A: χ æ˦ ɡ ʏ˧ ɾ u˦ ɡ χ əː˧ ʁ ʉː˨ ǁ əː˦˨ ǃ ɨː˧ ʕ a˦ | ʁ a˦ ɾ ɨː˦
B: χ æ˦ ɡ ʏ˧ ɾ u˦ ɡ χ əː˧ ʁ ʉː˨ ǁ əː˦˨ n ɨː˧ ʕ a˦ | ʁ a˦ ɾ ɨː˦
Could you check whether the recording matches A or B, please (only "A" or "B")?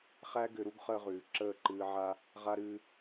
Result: A